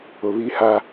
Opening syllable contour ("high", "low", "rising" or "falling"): low